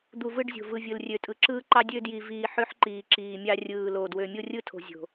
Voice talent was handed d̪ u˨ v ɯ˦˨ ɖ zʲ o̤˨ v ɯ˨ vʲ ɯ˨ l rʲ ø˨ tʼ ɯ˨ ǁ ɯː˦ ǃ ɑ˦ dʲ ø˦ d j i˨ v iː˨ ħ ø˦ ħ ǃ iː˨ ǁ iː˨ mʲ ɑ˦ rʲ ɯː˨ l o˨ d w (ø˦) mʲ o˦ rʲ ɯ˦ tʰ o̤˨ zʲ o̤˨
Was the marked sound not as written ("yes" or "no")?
yes